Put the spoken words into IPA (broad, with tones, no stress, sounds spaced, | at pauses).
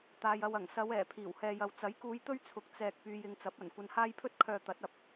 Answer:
t̪ aː˧ j ɐ˧ w ɐ˨˩ ŋ s ɐ˨˧ w ɛː˨˩ pʰ iː˨˩ w h ɛː˨ j ɐ˨ w t͡s ɐ˨˥ j k uː˧ j t̪ ɵ˥ ɥ t͡sʰ ʊ˨˥ k̚ t͡s ɛː˨ k̚ p yː˧ j ɪ˧ ŋ t͡s ɐ˨˥ p̚ ɐ˨˩ n kʷ ɐ˧ n h aː˥ j pʰ ɵ˥ t̚ kʰ œː˨ t̪ ɐ˨˥ t̚ ɐ˨ p̚